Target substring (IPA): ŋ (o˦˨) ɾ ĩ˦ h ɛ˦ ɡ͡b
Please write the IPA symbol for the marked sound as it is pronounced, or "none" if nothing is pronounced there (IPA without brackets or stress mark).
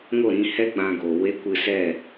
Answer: o˦˨